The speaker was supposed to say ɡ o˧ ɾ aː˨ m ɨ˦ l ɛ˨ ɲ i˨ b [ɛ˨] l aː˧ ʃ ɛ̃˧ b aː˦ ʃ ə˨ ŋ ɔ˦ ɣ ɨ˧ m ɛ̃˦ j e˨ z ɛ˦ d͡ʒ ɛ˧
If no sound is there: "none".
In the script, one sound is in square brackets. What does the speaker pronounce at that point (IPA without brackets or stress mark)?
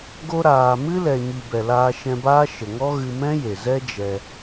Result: ɛ˨